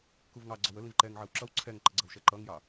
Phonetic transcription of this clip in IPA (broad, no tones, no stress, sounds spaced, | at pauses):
k u v ŋ ɑ ɡ͡ǀ ɒ w ə l ĩ v ǃ ɛ ŋ ʕ ɜ w ǁ ʌ w ǀʰ ɛ ŋ ǃ ə ɡ͡ǀ ʌ w ʃ ɛ ǃ ʌ ŋ j ɑ